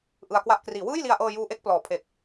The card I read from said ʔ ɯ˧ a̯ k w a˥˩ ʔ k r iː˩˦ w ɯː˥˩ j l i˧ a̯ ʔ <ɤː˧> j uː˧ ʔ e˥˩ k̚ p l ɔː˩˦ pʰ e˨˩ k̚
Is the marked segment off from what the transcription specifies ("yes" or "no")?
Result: no